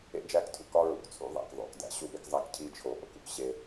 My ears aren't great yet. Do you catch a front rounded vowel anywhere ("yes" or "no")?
no